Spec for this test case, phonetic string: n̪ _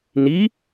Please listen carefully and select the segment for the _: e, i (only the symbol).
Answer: i